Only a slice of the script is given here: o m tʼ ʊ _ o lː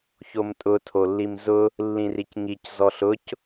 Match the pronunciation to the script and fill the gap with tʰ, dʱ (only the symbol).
tʰ